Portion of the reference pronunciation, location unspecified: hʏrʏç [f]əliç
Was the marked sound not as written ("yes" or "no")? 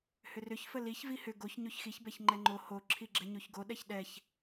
no